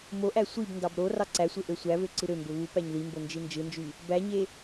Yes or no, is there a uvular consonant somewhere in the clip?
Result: no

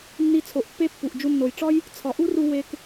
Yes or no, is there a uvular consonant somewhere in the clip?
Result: no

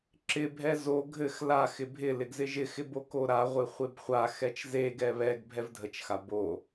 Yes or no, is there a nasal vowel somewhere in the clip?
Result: no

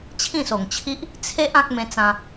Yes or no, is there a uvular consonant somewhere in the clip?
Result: no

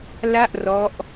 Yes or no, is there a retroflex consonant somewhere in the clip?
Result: no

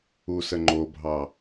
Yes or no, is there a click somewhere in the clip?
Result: yes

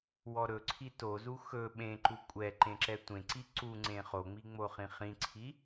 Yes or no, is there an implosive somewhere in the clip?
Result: yes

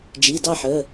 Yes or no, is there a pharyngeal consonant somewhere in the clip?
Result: yes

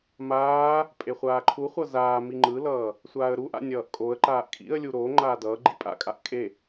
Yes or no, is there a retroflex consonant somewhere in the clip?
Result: no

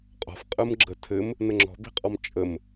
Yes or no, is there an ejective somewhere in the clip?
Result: yes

